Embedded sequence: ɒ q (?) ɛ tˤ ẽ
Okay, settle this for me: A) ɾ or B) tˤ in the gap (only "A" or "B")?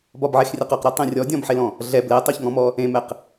A